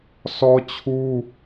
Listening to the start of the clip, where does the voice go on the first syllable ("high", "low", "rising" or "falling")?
high